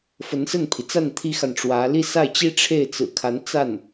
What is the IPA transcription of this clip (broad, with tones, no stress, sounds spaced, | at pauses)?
f ə˧˥ n s ə˥˩ n pʰ i˩ t͡s a˥˩ n t̪ʰ i˥ x a˨ n ʈ͡ʂ w ä˧˥ l i˥˧ s a˥˩ ɪ̯ t͡ɕ i˥ ʈ͡ʂʰ e˥˩ ɪ̯ t͡s ɹ̩˨˩ kʰ a˧˥ n t͡s a˥˩ n